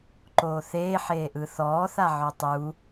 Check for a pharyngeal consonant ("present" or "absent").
present